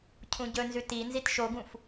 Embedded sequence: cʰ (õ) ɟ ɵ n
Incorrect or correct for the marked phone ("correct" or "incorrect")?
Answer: incorrect